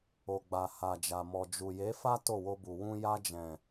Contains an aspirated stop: no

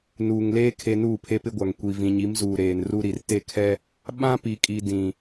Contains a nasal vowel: yes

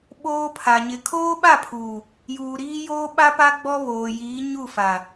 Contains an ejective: no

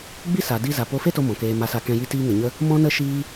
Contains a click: no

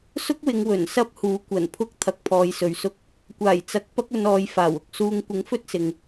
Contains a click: no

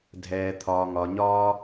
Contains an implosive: no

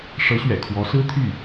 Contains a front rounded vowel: yes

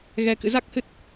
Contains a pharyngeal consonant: no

